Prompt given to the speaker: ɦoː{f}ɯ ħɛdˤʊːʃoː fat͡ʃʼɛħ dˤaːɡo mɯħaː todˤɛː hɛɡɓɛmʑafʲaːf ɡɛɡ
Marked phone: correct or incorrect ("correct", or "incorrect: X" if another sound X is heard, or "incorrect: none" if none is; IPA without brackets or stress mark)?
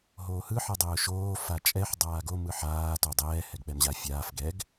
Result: incorrect: h